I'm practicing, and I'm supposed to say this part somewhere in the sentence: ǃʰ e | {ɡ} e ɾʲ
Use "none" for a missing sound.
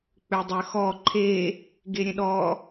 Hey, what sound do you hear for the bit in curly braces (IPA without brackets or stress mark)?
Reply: ɡ